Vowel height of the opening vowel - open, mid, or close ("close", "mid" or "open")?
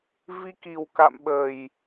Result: close